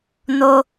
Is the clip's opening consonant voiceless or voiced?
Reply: voiced